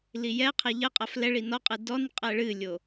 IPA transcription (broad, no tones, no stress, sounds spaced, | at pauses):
l i j ɛ qʰ ɛ ʎ ə qʼ a f l ɛ ɭ i n ɔ qʼ ɨ d ɔ n qʼ ɛ ɭ ɨ lʲ o